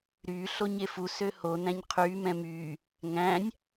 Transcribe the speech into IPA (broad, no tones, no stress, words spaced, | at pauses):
ɾyː ɬoɲefu søho næ̃ɲqʰyː mɛ̃myː | ŋæ̃nʲ